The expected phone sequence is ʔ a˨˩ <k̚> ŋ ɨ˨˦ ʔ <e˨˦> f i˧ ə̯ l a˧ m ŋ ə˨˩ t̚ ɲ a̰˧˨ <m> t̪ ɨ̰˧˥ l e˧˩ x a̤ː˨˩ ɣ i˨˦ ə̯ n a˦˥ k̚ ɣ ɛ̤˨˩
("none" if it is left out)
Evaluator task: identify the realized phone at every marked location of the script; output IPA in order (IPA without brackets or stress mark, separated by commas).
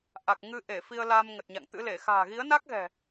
k̚, e˧˩, ŋ